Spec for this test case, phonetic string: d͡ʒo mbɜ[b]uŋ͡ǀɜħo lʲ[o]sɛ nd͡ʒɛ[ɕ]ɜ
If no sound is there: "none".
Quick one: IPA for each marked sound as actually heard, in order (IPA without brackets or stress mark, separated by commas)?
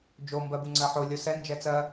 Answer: b, o, t͡s